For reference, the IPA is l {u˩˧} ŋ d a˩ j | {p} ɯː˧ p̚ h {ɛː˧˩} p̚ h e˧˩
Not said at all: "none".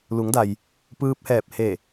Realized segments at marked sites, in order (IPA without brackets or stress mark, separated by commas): u˩˧, p, ɛː˧˩